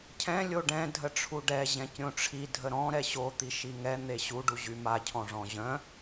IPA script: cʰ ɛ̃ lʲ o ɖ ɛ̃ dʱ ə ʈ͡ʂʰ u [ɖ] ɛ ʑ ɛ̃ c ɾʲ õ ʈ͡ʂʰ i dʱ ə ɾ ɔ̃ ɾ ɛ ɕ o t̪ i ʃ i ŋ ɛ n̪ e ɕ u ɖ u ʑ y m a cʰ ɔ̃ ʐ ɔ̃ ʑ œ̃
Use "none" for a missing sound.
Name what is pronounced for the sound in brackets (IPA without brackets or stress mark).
ɖ